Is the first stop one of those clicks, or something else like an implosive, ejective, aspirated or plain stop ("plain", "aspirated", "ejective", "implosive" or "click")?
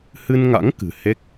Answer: plain